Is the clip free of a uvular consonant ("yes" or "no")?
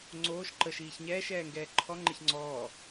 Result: yes